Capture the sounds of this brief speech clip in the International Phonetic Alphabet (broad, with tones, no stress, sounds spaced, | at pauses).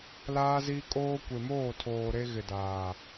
l aː˦ z i˦ kʼ oː˦ kʷ e˨ m oː˦˨ tʰ oː˨ ɾ e˦ ɣ ɪ˨ d aː˨